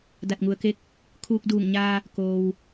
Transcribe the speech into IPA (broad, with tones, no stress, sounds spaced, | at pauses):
d a˧˩ t̚ ŋ u˩ ə̯ k e˧˥ k̚ | kʰ uː˧ k̚ d uː˧˩ ŋ ɲ aː˧ | k oː˩ w